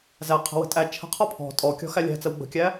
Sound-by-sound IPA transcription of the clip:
z æ qʰ ə̤ w ə̤ tʼ æ t͡ʃʰ ə̤ qʰ ɔ pʰ ɔ̤ tʼ ɔ kʲ ɔ̤ x æ lʲ æ̤ t͡s ə w ɡ͡b ə̤ kʲ æ

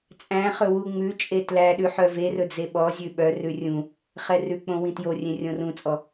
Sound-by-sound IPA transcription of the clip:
t͡sʼ æ̃ χ ɵ w u ŋ͡m ʉ t͡ʃʼ e t l æ ɗ ʉ ħ œ v e r ɵ d͡z e ɓ ɔ zʲ ʉ ɓ œ r ʉ rʲ ũ | χ ɛ r ʉ k͡p õ w ĩ t j o rʲ ẽ rʲ õ r ũ t͡sʼ ɔ

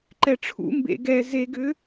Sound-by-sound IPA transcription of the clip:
ǃ ɛ ʈ͡ʂʰ ṵ m b ḛ ɡ ɛ z e ɡ ʏ

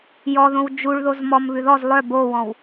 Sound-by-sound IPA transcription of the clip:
j ɔ ð õ w d͡ʒ u ɭ ð o z m ɔ m β ʉ ð ɔ z lˠ œ b o w ɔ̃ w

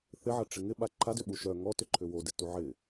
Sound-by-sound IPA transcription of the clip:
θ ɪ ʕ ɐ ʈ͡ʂ ɪ ŋ ɪ ɓ a ǃʰ a d ʏ ɓ u ʃ œ ŋ ɔ t ʏ ǃʰ ʏ w o d ɪ t u ʕ ɪ

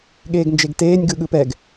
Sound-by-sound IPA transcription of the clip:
ɠ eː ɡ n d͡ʒ e ɡ t eː nʲ ɡ ɯ ɠ ɯ p ɛ ɡ

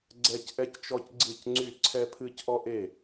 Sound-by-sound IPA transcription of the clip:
ɡ͡ǀ ɛ˦ c ʔ ɛ˦ c t͡ʃ ɔ˦ c ɡ͡ǀ ɨ˥˩ c ŋ͡ǀ y˥˩ ǀʰ ɛ˦ pʰ ɨ˦ c ʔ ɔ˦ ʔ e˥˩

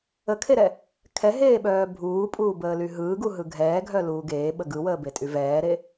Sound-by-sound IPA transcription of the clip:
ə kʰ e ɾ ɛ | kʰ ɛ ɦ eː ɓ œː bʱ uː pʼ uː b əː l y ɦ ɯː ɡ u ɦ ɯ ɡʱ ɛː ɡʱ œ l uː ɡ eː ɓ ə ɡ ɯ w əː b e tʼ y v ɛː ɾ e

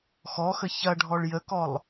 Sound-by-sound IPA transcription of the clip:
x ɔ x ə ç ɐ ɖʱ ɔ ɭ j ə k ɔ lˠ

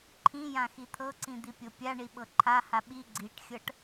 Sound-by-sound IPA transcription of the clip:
ǃʰ ĩ j ã x i t̪ʰ ɤ ǀ ĩ d̪ i pʲ ɤ pʲ a ɳ i ɓ ɤ ǃʰ a h a ɓ i ɡ͡ǀ i ʈ xʲ ɤ ʈ

